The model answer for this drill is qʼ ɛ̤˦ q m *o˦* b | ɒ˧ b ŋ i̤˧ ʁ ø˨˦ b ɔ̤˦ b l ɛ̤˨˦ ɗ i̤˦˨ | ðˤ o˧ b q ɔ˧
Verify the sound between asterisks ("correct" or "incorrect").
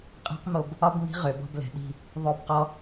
incorrect